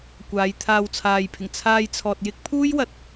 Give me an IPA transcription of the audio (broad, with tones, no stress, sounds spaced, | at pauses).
kʷ aː˨˧ j t̪ʰ aː˧ w t͡sʰ aː˨ j pʰ ɪ˨˩ ŋ t͡sʰ aː˧ j t͡sʰ ɔː˨ t̚ j ɪ˥ k̚ pʰ uː˥ j w ɐ˨ t̚